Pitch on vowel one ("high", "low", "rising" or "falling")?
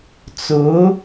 rising